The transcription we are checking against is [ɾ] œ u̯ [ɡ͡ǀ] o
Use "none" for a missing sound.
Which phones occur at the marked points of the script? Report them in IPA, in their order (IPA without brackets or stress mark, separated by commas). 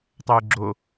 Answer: tˤ, ɡ͡ǁ